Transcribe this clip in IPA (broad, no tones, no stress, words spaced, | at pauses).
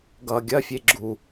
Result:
ɡʌ ɡʲɐfʲe ɡ͡ǁu